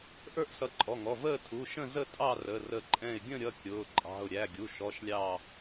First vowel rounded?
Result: no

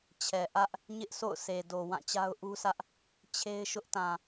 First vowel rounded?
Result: no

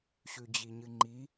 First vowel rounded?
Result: yes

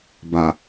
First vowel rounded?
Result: no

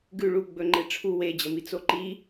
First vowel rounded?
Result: yes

